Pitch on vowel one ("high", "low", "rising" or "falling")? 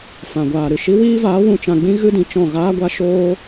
low